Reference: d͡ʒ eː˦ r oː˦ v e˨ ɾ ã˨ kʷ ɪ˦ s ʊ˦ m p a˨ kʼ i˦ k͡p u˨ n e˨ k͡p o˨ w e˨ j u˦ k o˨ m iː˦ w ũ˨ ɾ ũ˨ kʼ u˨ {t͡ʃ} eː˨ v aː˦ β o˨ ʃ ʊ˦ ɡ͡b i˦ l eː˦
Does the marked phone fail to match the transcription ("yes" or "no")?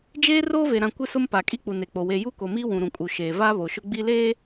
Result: yes